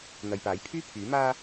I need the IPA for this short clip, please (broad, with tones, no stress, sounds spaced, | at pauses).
n̪ ɐ˨ j p aː˨˥ j pʰ yː˥ pʰ yː˨˥ m aː˧